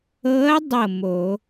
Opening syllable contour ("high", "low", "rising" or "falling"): rising